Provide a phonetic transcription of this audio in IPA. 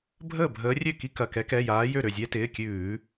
bʱ əː˥˩ bʱ əː˨˦ rʲ ø˥˩ k i˦ k ɐ˩˧˩ k ɛ˨˦ k ɛ˩˧˩ j aː˨˦ j ø˥˩ ɾ ø˥˩ zʲ ɛ˦ t ɪː˩˧˩ kʲ ʉː˧˩˧

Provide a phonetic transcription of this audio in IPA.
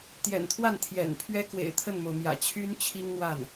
t̪ j ɛ̰˨˩ n t̪ʰ w a˥˩ n t̪ʰ j ɛ̰˨˩ n pʰ ɥ ɛ˥ k w ḛ˨˩ ɪ̯ t̪ʰ ə˥˩ n m o˩ ʊ̯ m j ä̰˨˩ t͡ɕʰ y˥ n t͡ɕʰ i˥ ŋ n̪ w a˥˩ n

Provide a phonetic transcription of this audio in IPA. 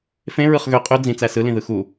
f ẽ ɹ ɯ χ ɣ ø qʼ ø d͡z ĩ t͡s æ s ɯ l ĩ ð ɯ x u

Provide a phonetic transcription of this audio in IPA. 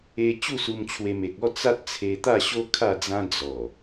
e˧ t͡ɕ u˥˧ s u˧ m t͡ɕʰ w e˧ m e˨ k̚ ɔ˥˧ t͡s a˦ t̚ t͡sʰ e˧ t̪ a˥˧ ɕ o˦ kʰ a˥˧ d͡z ã˦ d͡z ɔ˨˩

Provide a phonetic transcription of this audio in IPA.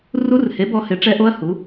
r u˦˥ r h e˨˥ b ɔ˨˥ h ɪ˨˥ ʈ͡ʂ ɛ˦˥ ʔ o˦˥ ɐ̯ h u˨˥

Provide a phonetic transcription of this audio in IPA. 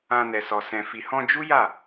ã˧ n ɛ˨ s ɔ˨ s ɛ̃˨ f i˨ h ɔ̃˧ d͡ʒ u˦ j a˦˨

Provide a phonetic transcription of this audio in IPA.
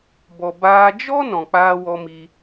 b ɔ˨ b aː˧ d͡ʒ ɔ˦ n ɔ̃˨ k͡p aː˧ w ɔ˧ m i˧

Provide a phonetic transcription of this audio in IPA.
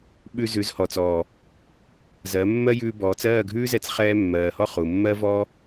ɓ ʉ˧ z ʉ˨˦ z h ɔ˨ t͡s ɔː˨ | z ɜ˨˦ mː ɜ˦ j ʉː˧ b ɔː˨˦ t͡s ɜː˦˨ ɡʱ ʉː˦ z ɛ˧ t͡s χ ɛː˧ mː ɜː˨ h ɔ˧ χ u˨ mː ɜ˦ v ɔː˦

